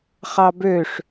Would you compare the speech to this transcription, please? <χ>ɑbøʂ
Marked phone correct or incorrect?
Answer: correct